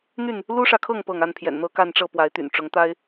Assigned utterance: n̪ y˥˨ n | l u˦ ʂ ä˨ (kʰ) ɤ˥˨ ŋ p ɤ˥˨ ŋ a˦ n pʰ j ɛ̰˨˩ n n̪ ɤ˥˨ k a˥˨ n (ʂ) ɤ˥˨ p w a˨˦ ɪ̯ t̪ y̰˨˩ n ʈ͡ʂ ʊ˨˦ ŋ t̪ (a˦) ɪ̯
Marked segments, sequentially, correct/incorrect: correct, incorrect, correct

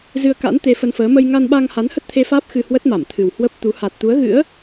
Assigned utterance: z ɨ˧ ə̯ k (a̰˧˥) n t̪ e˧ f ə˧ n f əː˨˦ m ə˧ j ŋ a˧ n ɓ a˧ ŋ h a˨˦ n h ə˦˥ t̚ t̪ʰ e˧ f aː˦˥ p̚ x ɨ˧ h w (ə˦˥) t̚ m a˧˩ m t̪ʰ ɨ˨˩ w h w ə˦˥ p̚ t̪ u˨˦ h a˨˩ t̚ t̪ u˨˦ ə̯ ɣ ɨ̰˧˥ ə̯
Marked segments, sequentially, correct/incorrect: correct, correct

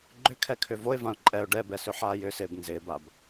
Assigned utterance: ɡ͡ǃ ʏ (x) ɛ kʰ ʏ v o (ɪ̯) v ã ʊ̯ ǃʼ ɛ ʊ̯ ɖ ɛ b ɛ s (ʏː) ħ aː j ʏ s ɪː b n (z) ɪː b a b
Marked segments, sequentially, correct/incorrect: incorrect, correct, incorrect, correct

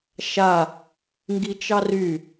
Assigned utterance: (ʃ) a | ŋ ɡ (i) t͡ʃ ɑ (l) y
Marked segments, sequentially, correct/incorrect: correct, correct, incorrect

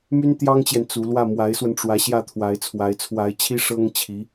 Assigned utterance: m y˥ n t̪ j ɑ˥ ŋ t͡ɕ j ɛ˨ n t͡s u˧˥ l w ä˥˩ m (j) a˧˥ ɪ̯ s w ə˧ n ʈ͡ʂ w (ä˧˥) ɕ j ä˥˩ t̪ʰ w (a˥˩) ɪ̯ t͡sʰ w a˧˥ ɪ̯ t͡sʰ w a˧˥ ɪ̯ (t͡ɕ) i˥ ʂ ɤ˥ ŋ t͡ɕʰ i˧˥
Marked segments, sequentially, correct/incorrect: incorrect, correct, incorrect, incorrect

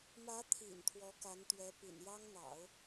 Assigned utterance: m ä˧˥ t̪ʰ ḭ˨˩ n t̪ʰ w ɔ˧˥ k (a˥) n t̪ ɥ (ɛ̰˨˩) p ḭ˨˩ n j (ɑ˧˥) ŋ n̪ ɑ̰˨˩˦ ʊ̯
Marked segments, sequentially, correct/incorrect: incorrect, incorrect, incorrect

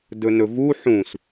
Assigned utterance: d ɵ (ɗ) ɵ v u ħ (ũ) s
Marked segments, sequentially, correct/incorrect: incorrect, correct

